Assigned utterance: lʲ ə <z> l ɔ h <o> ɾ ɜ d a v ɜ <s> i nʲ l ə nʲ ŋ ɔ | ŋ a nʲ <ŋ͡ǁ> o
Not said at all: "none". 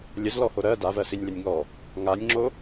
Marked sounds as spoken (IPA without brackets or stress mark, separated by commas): z, o, s, ŋ͡ǁ